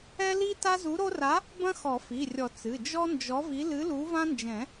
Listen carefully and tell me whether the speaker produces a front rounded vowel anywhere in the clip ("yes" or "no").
no